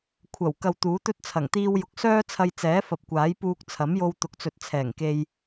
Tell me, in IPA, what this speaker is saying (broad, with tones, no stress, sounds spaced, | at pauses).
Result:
kʷʰ ɐ˨˩ w k ɐ˧ w t̪ uː˨˥ t̪ ɵ˥ t̚ t͡sʰ ɐ˨˩ ŋ t̪ iː˧ w j ʊ˨ k̚ s œː˥ t͡sʰ ɐ˧ j t͡s ɛː˨˥ f ɐ˨ p̚ kʷ aː˨˥ j p uː˧ k̚ t͡sʰ ɐ˨˥ m j o˧ w t̪ ʊ˨˥ k̚ t͡s ɵ˨ t̚ t͡sʰ ɛː˨˩ ŋ k e˧ j